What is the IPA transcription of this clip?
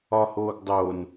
ɒ h oː ɡ dˤ oː n

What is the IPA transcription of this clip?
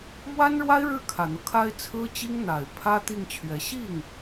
m w a˥ n ɻ w a˥ ɪ̯ ɻ ɻ̩˥˩ kʰ ä˨˩ n̪ ɤ˦ kʰ a˥ ɪ̯ t͡sʰ ɹ̩˥ t͡ɕ i˥ ŋ n̪ a˨˩ ɪ̯ pʰ ä˥ t̪ i˥˩ ŋ t͡ɕʰ ɥ ɛ˧˥ ɕ i˥˩ ŋ

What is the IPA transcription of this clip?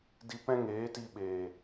d i˧ p ɛ̃˦ ŋ eː˨˦ t i˧ ɓ eː˨

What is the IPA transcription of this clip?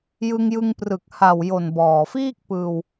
j ɯ˧ ŋ j ɯ˧ ŋ p r ɯ˨˩ k̚ h a˨˩ w j o˨˩ n b ɔː˨˩ f iː˥˩ k̚ p ɯː˧ w

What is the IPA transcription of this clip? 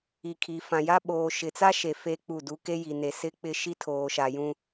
i˨ kʰ i˨ f ã˨ j a˦ ɓ oː˨ ʃ ɪ˨ t͡s a˦ ʃ e˨ f e˦ k͡p u˦˨ d u˦ k e˦ j i˨ n e˨ s ɪ˦ k͡p ɪ˦ ʃ i˦ tʰ oː˨ ʃ a˨ j ũ˦

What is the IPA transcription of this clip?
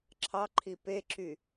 ǁʰ ɑ ǃʰ i p e ǁ y

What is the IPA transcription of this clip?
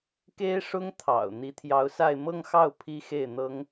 k e˥ ɪ̯ ʂ ʊ˥ ŋ t̪ʰ ɑ̰˨˩ ʊ̯ n̪ i˧˥ t̪ʰ j ɑ˧˥ ʊ̯ s a˥˧ ɪ̯ m ɤ˥˧ ŋ x ɑ˥˩ ʊ̯ pʰ i˥ x e˥˩ ɪ̯ n̪ ɤ˥ ŋ

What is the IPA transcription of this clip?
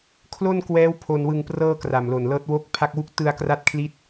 kʰ l o˥˩ n k w ɛː˦˥ w pʰ o˧ n w ɯ˧ ŋ p r ɤː˥˩ k r a˨˩ m l o˨˩ n l ɤː˦˥ t̚ w o˦˥ k̚ pʰ a˥˩ k̚ w u˥˩ k̚ t ɯ˧ a̯ k r a˦˥ t̚ kʰ l i˦˥ t̚

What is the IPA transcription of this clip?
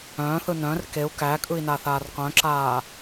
œ̃ː θ ɯ n œ̃ r k e u̯ k æ kʼ ɯ i̯ n aː θ aː r q œ̃ ǁ aː

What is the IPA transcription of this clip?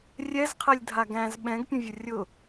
rʲ ɛ z qʰ ɛ lʲ dʱ a ɡ æ̃ z ɓ ɛ̃ ɡ pʲ ə̃ vʲ ʊ rʲ ʊ

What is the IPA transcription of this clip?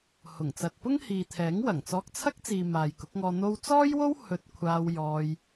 h ʊ˨˩ ŋ t͡s ɐ˨ t̚ p ʊ˥ ŋ h iː˨ t̪ʰ ɛː˨˥ ŋ w ɐ˨˩ ŋ t͡s ɔː˧ k̚ t͡sʰ ɐ˥ k̚ t͡s iː˨ m aː˨ j k ʊ˨˥ k̚ ŋ ɔː˧ n̪ o˧ w t͡s ɔː˥ j w o˥ w h ɵ˧ t̚ kʷʰ aː˧ w j ɔː˧ j

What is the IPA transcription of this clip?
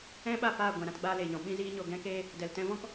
ɛ̃˦ ɓ a˦˨ p aː˦˨ ɡʷ ɛ̃˨ ɾ ã˦ t ɡ͡b aː˦ l eː˨ ɲ ɔ̃˨ ɓ ĩ˦ z iː˦ ɲ o˧ ɡ ɛ̃˦ k eː˦ | d ɛ˨ l t ɛ̃˧ v ɔ̃˦ k

